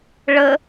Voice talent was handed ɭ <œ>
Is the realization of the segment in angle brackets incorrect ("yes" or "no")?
yes